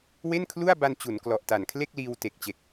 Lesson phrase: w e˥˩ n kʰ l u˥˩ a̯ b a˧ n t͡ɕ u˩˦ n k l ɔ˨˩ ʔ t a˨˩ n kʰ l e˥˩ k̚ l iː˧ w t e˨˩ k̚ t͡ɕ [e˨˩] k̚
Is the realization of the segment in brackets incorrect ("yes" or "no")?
no